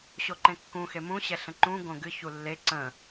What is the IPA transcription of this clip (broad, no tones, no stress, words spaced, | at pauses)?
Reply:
ɕoǃẽkːũ xemũ ɕɛɬə̃ǃũ ɡõɡɨ çulːe ǀə̃